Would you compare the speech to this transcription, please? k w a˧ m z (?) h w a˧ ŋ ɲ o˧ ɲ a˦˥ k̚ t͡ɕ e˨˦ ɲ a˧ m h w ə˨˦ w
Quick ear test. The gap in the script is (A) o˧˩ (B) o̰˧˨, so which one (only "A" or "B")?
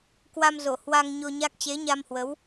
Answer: A